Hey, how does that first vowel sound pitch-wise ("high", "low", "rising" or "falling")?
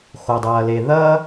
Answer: low